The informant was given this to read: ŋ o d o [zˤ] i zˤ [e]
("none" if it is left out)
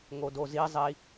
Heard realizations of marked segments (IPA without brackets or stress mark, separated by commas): z, i